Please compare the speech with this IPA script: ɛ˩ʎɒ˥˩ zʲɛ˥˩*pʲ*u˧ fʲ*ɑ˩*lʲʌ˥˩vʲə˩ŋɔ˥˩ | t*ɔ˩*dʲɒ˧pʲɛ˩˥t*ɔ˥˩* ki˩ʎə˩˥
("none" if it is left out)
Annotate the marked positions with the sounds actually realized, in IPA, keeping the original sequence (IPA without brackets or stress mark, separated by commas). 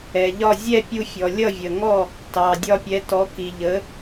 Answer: pʲ, ɔ˩, ɑ˩, ɔ˩˥